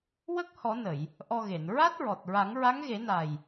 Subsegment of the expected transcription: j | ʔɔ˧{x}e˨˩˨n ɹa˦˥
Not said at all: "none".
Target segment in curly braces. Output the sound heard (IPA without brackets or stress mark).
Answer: ɣ